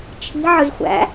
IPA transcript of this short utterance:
t͡ʃʰ i̤ ʕ ɯ z xʷ æ̰

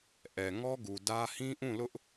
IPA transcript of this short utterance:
ʔ ɛ˨ ŋ ɔ˦ ɡ u˨ d ä˦ h ĩ˦ ʔ ũ˦˨ l ʊ˦ ʔ

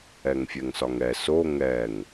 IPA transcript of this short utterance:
ɛ ŋ fʲ ɛ ŋ s ɒ ŋ ɛ s o ŋ ɛ ŋ

